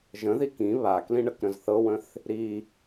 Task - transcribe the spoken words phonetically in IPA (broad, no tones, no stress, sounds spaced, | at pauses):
ʒ ə̃ ð i k ĩ β a k l ĩ ɳ ə k ɾ ə̃ z θ ɤ w ə̃ θ | ɾ i